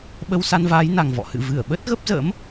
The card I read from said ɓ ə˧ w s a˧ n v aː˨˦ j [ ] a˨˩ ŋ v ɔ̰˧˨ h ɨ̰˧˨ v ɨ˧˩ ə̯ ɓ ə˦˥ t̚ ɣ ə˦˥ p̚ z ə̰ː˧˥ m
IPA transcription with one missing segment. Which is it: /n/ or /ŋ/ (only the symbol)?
n